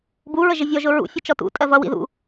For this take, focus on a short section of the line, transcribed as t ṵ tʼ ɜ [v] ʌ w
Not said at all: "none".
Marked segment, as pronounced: v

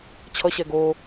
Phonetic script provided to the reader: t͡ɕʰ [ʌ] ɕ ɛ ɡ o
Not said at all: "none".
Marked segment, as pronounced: ʌ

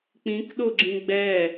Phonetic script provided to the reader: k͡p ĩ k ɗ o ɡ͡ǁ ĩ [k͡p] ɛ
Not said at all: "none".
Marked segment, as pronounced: ɡ͡b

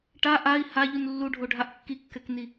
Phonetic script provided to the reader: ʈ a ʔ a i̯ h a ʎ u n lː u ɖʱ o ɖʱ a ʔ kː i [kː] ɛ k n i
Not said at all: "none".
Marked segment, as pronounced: kː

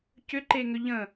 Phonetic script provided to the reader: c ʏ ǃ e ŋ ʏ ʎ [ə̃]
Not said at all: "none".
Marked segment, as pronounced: ə̃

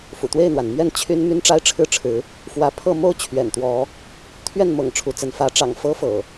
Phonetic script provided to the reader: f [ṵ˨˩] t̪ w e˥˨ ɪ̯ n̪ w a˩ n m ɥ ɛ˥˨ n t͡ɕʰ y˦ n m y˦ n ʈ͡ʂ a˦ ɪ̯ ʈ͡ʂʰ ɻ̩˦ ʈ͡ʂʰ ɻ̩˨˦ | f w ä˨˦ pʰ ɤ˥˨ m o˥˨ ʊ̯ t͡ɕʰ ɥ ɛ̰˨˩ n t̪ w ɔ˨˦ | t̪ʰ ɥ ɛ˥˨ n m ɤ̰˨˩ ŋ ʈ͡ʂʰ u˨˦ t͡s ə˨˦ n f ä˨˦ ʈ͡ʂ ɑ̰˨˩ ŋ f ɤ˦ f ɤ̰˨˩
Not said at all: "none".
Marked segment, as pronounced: ṵ˨˩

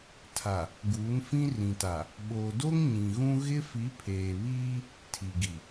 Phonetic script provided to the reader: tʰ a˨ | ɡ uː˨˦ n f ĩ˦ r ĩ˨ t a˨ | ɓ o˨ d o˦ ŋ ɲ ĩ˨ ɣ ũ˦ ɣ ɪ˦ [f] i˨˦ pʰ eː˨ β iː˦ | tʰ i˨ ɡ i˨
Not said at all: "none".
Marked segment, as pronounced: f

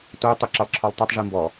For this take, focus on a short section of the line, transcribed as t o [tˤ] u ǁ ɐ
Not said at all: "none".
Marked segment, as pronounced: tˤ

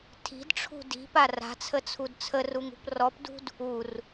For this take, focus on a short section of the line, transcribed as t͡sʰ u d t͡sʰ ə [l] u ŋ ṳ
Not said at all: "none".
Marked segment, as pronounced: r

